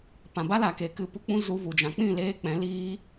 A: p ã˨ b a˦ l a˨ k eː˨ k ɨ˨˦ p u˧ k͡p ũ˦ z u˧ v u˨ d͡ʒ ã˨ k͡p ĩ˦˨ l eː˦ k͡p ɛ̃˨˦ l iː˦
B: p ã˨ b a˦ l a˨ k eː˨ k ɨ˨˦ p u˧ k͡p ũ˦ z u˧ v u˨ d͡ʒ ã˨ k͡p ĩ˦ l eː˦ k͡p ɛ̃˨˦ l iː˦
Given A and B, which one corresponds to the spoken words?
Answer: A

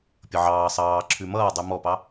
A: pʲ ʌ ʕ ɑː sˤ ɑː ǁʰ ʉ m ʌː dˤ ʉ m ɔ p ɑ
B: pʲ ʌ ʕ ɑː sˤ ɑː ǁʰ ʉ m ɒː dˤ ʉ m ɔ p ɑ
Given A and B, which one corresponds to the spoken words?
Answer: A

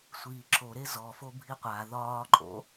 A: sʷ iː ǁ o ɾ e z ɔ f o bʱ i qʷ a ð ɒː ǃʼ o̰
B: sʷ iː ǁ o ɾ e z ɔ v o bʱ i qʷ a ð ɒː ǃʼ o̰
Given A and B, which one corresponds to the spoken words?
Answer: A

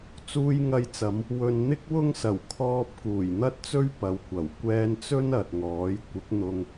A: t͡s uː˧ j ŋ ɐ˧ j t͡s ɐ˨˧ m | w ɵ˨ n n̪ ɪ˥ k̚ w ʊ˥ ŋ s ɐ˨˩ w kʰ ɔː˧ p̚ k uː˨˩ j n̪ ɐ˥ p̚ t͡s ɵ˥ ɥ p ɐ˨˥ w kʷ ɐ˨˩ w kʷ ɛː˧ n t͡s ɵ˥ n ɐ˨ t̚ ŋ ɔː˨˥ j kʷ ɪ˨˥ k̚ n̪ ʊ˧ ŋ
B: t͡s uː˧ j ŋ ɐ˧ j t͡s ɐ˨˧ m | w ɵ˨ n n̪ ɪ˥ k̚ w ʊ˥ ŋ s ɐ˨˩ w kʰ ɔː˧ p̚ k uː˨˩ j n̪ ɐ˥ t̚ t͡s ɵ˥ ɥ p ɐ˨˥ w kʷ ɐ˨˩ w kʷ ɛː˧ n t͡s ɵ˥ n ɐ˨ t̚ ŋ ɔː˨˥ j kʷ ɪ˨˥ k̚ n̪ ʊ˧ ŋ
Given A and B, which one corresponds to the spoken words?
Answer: B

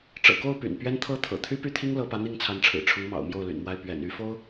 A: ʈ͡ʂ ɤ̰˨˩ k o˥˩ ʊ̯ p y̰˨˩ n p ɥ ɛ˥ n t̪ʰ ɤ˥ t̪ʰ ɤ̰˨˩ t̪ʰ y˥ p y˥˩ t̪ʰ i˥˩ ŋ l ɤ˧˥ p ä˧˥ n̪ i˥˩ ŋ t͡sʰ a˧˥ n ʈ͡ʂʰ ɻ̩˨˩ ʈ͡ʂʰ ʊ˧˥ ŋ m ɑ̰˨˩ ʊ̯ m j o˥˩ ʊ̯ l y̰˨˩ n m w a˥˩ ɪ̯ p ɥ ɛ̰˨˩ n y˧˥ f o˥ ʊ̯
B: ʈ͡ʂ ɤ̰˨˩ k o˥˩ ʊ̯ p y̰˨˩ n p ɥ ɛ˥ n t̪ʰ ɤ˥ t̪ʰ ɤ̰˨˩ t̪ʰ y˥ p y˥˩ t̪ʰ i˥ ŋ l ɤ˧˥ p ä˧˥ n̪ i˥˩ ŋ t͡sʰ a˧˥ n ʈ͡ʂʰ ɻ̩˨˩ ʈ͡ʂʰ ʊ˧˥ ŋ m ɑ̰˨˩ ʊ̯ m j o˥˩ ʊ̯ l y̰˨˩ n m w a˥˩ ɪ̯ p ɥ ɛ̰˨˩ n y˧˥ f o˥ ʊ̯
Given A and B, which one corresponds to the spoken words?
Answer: B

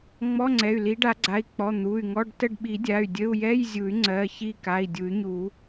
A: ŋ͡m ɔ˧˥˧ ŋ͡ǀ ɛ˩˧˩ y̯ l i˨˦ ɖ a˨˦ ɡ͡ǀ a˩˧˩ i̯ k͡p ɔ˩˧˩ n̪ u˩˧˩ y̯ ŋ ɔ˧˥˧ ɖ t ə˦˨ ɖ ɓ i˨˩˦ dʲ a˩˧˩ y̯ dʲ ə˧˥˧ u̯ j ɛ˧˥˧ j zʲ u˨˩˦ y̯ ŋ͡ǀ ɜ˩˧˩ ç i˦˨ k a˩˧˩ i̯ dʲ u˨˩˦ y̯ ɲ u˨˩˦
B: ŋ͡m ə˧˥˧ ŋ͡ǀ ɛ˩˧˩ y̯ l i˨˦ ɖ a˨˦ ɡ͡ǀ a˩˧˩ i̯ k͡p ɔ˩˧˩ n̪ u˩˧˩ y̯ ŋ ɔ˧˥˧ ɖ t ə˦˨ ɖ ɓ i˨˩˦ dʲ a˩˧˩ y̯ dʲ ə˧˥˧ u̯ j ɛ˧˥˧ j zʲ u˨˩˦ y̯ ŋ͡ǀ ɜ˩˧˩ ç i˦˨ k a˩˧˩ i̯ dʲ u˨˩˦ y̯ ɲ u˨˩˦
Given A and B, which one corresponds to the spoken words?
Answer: A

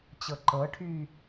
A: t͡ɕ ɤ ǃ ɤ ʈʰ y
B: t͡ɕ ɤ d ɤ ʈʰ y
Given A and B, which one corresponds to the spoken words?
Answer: A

